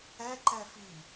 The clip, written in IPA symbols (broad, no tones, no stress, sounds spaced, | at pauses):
ɛ ǃ ɛ f i